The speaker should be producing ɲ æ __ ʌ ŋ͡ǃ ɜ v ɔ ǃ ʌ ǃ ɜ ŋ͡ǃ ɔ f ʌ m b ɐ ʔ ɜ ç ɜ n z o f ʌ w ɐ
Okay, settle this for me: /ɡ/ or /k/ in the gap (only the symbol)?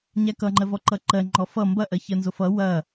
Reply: k